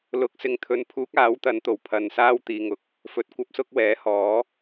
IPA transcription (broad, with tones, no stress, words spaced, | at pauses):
lʊ˨˥k̚sɪ˨ŋt̪ʰɵ˨˥npʰuː˨˥k̚ aː˨˥wt̪ɐ˨˥n t̪o˨˩wpʰɐ˧n saː˥w t̪iː˨ŋʊ˨˥k̚ | fɵ˧t̚ kʷɐ˥p̚sʊ˥k̚wɛː˨˥hɔː˨˥